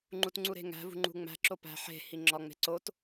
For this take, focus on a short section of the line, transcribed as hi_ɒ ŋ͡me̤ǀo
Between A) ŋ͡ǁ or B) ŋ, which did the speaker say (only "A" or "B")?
A